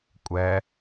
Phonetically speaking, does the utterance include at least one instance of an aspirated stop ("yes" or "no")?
no